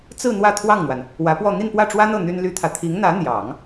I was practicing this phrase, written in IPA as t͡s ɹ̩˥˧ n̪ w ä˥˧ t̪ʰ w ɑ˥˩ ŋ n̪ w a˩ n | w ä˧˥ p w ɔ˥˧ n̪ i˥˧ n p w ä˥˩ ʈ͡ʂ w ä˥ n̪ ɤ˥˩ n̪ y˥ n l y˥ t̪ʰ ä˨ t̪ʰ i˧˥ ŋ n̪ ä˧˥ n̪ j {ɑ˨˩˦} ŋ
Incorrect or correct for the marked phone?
correct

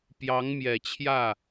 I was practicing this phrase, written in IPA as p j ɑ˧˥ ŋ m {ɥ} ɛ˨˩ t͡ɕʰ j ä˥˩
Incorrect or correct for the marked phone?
incorrect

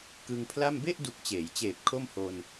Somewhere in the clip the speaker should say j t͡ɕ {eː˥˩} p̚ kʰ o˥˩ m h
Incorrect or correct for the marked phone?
incorrect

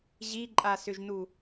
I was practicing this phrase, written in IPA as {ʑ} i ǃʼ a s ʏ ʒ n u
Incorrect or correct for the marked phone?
correct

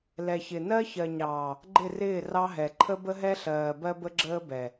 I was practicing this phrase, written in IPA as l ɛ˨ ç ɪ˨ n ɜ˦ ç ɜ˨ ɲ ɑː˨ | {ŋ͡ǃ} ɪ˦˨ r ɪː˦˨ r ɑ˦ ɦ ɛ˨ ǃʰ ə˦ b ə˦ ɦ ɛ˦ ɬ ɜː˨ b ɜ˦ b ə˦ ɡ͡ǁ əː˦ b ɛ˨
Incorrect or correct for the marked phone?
incorrect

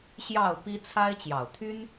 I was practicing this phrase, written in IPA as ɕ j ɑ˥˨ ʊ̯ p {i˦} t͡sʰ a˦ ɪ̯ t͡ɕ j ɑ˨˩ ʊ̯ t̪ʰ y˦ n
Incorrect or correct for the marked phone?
correct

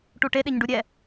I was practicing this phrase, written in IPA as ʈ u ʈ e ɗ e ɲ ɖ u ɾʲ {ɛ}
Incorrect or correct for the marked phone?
correct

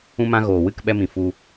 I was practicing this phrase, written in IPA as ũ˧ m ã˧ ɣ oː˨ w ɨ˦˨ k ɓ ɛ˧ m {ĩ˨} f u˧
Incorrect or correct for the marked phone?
correct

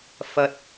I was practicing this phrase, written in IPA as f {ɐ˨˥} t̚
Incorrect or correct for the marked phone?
incorrect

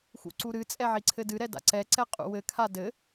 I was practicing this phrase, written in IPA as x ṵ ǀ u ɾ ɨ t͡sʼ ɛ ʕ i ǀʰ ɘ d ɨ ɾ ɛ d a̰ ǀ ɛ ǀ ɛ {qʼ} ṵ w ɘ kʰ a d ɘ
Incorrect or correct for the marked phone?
correct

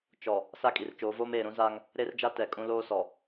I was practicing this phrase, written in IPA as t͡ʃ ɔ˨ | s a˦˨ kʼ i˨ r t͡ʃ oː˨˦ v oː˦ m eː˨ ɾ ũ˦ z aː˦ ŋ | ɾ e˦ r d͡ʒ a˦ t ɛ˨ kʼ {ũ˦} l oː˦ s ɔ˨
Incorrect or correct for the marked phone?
correct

